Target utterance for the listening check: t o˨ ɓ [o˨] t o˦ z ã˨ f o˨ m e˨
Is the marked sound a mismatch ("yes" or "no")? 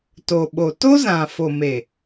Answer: no